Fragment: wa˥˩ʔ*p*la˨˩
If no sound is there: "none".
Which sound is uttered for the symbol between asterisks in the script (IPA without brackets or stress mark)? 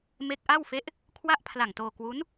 pʰ